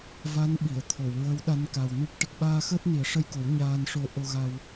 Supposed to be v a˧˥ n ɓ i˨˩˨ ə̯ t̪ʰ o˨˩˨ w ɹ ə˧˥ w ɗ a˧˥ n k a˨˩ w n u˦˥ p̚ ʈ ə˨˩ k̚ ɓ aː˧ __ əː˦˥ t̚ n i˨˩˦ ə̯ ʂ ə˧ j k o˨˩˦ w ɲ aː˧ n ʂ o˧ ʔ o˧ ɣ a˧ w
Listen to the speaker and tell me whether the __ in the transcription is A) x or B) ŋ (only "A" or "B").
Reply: A